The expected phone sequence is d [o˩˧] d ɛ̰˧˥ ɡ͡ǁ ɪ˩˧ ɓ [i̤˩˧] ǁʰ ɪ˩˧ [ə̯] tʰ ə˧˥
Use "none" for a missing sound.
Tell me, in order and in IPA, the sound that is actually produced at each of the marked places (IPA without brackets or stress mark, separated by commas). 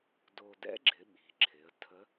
o˧, i̤˩˧, ə̯